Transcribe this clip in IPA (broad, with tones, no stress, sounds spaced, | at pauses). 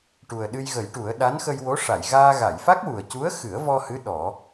ʈ u˨˩ ə̯ ɗ ɨ˧ j ɣ ə˨˩˦ j ʈ u˨˩˦ ə̯ ɗ a˧˥ n x ə˧ j w o˧˥ ʂ a˨˩˨ j ɣ aː˧ ɣ a˨˩˨ j f a˦˥ k̚ w u˨˩ ə̯ c u˧˥ ə̯ x ɨ˨˩˦ ə̯ v ɔ˧ h ɨ˧˥ ɗ ɔ˨˩˦